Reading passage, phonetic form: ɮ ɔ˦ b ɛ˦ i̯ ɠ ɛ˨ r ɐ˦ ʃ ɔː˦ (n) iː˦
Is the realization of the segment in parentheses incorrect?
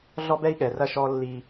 yes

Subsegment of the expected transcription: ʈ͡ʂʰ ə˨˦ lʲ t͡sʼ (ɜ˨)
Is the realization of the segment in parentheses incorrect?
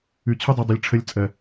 no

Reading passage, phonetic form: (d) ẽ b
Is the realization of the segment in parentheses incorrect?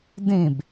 no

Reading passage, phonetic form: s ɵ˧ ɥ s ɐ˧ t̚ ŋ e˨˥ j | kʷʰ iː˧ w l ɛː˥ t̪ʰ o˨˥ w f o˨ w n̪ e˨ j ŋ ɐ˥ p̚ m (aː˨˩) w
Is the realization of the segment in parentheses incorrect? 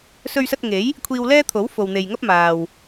yes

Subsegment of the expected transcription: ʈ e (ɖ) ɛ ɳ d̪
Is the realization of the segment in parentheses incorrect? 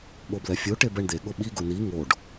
yes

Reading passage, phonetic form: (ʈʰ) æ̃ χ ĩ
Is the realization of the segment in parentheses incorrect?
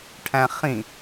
no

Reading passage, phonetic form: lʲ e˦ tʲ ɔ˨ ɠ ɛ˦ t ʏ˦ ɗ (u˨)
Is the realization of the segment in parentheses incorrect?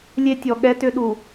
no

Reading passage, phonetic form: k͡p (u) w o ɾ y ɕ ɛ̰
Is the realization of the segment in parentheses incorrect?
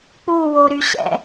no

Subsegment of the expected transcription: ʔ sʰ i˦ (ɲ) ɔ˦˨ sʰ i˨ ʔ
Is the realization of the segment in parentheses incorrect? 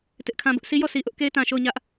yes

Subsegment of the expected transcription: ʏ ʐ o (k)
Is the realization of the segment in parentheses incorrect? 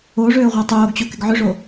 yes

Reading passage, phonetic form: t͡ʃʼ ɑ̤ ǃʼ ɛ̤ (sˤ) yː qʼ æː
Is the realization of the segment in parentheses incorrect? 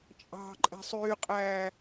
no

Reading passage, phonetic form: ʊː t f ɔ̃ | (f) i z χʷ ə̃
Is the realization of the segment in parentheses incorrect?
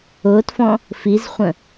no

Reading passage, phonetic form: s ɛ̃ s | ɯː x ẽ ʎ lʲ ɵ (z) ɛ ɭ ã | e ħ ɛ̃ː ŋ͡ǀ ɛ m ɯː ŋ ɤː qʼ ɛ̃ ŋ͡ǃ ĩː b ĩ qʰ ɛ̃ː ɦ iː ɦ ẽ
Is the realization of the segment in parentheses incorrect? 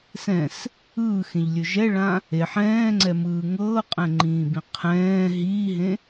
yes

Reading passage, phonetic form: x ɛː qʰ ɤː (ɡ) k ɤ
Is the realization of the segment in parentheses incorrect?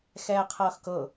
yes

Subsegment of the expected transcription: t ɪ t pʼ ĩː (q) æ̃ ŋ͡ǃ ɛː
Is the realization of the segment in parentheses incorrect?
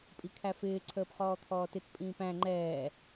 yes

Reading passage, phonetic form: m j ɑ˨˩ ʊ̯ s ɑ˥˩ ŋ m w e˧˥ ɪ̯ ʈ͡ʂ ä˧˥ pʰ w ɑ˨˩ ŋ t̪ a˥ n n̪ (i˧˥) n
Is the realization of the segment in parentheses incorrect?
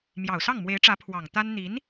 no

